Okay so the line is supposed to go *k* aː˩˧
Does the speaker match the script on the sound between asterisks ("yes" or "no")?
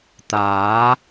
no